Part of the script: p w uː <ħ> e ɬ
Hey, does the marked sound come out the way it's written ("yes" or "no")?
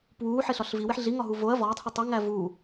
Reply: yes